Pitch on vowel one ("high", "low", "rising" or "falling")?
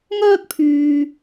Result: high